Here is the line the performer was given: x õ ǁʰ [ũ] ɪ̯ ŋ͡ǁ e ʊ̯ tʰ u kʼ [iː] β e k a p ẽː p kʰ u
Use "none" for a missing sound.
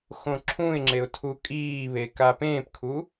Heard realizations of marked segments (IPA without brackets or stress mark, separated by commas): ũ, iː